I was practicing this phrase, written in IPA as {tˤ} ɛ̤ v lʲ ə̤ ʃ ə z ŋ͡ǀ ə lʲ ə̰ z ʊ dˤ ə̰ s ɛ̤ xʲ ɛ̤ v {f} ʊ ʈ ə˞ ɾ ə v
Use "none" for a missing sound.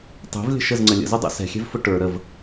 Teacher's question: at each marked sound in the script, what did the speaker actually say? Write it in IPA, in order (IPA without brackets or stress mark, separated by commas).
tˤ, f